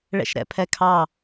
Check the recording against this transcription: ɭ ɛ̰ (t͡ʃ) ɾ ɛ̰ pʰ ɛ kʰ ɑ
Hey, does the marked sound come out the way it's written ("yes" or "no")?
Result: no